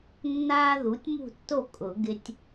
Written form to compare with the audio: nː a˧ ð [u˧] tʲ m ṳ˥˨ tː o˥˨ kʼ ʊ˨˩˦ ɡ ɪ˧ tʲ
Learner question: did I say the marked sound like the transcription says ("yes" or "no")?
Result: no